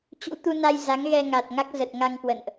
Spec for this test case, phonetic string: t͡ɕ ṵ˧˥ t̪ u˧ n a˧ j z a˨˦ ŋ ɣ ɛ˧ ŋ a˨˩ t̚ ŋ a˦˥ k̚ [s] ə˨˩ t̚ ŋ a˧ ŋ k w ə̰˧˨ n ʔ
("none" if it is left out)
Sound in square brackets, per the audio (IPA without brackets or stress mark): z